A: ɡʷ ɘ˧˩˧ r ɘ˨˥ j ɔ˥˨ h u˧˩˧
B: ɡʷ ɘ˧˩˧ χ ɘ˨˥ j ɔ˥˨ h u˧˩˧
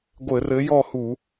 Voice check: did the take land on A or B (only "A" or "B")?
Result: A